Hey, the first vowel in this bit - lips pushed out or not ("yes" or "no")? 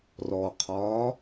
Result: yes